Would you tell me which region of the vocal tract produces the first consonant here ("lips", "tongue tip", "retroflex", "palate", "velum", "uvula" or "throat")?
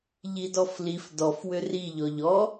palate